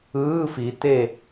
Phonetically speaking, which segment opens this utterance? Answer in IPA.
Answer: ɯː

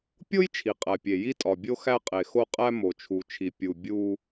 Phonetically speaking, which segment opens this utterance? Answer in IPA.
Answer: pʲ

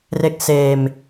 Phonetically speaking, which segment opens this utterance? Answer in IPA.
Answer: r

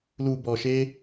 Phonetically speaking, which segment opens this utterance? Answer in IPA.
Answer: l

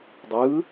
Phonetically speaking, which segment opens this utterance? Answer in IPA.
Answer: dˤ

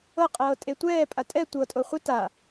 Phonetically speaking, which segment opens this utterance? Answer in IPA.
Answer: ɤ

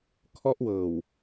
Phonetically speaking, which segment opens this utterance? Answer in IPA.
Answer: kʰ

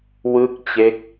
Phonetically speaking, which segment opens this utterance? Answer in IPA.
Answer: w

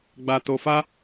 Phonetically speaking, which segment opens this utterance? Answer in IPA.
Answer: ɡ͡b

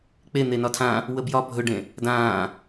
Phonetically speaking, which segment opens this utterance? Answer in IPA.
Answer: k͡p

